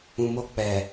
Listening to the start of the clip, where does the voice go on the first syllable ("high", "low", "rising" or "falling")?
low